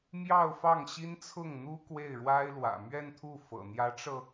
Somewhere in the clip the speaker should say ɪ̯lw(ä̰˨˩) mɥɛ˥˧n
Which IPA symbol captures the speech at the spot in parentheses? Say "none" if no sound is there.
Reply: ä̰˨˩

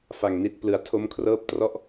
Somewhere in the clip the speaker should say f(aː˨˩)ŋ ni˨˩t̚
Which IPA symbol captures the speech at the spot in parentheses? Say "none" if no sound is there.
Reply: a˨˩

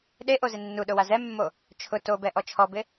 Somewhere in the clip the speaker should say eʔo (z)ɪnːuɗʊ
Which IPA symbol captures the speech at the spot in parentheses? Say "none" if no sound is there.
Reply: z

